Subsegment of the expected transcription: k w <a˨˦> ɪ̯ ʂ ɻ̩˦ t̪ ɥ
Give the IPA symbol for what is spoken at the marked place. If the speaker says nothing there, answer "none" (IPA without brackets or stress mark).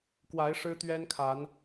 a˨˦